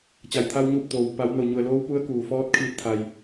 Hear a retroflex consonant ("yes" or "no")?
no